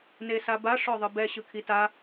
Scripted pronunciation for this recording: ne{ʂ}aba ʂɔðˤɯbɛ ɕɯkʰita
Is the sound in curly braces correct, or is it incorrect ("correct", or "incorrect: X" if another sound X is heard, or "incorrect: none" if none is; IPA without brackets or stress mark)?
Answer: incorrect: s